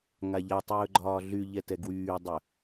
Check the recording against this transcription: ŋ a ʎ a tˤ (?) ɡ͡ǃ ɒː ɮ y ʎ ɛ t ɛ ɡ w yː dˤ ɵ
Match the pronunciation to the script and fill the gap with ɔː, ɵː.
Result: ɵː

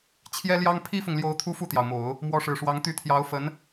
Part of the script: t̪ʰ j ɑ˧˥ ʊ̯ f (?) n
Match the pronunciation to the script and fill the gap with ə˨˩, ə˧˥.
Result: ə˧˥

